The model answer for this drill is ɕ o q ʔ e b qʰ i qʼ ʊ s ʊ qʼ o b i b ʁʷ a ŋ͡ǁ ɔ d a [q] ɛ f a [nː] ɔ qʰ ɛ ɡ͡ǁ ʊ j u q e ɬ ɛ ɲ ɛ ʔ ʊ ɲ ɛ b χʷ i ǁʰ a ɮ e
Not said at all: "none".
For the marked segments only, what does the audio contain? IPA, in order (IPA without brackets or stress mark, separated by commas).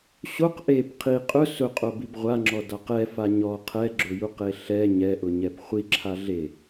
q, ɲ